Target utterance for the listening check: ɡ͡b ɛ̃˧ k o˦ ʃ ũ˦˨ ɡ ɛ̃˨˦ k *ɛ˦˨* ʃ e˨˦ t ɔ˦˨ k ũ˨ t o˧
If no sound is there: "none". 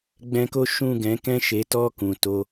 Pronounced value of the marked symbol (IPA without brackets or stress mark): ɛ̃˦˨